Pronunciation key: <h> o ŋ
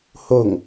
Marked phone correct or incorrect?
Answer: correct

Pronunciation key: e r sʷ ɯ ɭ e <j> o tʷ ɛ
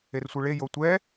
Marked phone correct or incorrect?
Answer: correct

